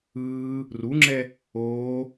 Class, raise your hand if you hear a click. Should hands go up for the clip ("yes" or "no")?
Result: yes